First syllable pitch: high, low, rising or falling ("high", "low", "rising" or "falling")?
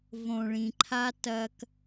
low